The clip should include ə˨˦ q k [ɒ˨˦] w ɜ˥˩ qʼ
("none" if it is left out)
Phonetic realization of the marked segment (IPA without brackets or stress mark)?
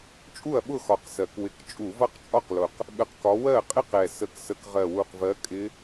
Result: ɒ˨˦